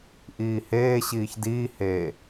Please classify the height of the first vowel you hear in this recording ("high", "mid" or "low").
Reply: high